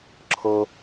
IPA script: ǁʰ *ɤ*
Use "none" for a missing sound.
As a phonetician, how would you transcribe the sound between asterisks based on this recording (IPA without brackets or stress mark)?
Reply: ɤ